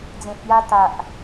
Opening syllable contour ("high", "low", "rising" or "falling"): low